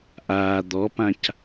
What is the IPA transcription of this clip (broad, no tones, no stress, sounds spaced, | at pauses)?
ʔ aː d̪ ɔ p ã c